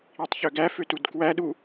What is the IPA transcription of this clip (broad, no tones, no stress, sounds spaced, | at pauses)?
i tˤ ç ø ɡ æ f ø t u d k w æ ɗ u